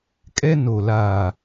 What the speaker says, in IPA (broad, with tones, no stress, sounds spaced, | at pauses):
kʼ ɛ˦ n o˨ l aː˨